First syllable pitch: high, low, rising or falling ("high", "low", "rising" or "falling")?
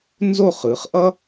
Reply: falling